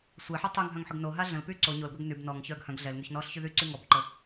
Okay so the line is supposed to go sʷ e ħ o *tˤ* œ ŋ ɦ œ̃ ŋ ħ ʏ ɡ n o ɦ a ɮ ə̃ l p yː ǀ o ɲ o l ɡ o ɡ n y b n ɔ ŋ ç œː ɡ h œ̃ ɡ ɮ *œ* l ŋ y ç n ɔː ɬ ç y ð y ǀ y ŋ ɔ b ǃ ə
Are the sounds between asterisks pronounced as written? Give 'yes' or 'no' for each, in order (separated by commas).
yes, no